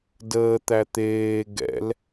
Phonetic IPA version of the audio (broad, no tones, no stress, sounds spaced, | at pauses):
d əː t̪ æ t̪ eː ɡ ɛ̰ l